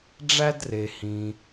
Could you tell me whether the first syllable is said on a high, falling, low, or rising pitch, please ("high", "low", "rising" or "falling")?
high